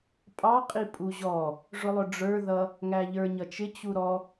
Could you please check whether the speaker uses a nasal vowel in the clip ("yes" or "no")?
no